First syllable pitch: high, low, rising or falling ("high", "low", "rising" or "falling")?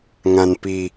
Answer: low